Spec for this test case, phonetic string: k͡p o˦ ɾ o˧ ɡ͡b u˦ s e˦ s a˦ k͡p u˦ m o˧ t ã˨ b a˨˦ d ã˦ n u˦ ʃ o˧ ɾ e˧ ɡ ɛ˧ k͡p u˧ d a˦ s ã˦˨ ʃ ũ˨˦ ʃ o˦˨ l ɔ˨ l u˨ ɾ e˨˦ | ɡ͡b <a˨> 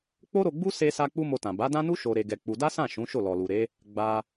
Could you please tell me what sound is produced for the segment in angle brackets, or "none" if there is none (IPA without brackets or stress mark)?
a˧